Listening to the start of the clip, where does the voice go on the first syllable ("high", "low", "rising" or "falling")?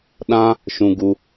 high